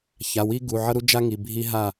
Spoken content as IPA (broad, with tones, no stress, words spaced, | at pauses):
ça˩˧˩wi˦ɡu˩˧˩ ʕʌ˦ɾu˦ d͡ʒa˦ŋi˩˧˩ bʱi˦ ɦa˦˨